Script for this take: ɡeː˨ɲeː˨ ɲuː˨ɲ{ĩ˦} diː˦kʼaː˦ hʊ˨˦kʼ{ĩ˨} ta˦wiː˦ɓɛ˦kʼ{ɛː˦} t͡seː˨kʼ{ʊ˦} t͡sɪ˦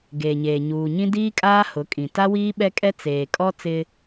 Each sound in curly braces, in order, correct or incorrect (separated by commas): correct, correct, incorrect, incorrect